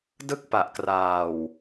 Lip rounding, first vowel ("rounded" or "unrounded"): unrounded